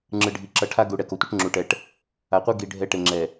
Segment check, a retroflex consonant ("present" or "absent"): present